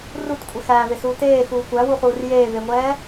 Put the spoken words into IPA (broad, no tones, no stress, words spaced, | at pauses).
rutkʷʼe xæːvesuː teːxuː kʷæwuχuːr jeːveŋʷɛː